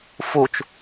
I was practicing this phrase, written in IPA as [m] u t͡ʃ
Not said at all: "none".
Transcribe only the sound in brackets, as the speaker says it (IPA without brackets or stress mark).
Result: f